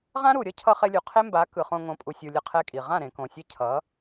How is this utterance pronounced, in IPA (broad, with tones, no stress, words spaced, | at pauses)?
ʁã˦ɾu˨ɾʲʌ˦cʰʌ˧ χe˧lʲu˨qʰe˦mba˨˦ kɯ˨χõ˧ ŋõ˨˦pʼu˨sʲu˨ lʲʌ˧qʰɛ˧kʼi˨ ʁã˦˨ɾẽ˨kõ˨sʲɛ˧ cʰʌ˨˦